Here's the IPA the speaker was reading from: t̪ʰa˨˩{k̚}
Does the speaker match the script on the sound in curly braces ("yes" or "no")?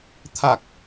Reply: yes